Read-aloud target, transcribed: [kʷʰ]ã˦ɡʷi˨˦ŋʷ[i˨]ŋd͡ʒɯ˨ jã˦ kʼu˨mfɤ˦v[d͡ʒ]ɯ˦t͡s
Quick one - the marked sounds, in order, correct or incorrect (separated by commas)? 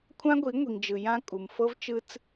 correct, correct, incorrect